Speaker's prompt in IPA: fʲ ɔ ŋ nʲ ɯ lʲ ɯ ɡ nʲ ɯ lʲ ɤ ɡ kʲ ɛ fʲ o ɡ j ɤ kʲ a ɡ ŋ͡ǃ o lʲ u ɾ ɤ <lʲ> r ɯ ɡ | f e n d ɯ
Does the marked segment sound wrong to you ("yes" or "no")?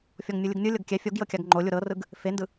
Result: yes